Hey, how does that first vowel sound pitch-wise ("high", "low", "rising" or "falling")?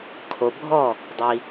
low